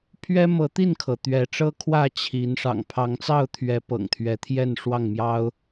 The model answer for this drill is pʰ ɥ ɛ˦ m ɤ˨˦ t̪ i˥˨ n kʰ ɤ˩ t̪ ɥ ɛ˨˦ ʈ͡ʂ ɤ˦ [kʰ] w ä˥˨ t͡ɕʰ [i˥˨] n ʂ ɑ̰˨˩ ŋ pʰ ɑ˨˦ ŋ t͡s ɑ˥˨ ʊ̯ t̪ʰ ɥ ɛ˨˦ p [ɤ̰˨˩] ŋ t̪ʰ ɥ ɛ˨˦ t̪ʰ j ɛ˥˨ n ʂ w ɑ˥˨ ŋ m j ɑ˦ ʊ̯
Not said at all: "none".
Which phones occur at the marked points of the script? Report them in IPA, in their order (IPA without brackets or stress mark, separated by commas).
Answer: kʰ, i˨˦, ɤ̰˨˩